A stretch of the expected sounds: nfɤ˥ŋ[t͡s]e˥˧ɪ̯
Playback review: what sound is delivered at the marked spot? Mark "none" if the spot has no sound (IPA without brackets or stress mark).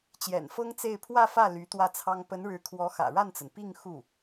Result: t͡s